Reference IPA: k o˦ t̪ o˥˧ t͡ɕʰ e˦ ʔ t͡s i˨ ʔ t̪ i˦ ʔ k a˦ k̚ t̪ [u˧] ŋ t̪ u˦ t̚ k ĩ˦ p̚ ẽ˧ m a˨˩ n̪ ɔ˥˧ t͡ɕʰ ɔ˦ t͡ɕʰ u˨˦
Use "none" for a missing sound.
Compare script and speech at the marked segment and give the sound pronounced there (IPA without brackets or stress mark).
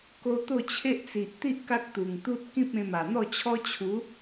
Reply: u˨˩